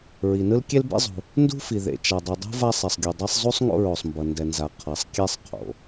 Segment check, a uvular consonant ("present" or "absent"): present